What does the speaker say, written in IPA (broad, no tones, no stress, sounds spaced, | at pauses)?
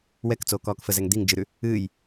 w ɛ k t͡s oː k ɔː k f ə z ɛ ŋ d̪ i ŋ d͡ʒ ɨ ɾ ʉ | ɨː j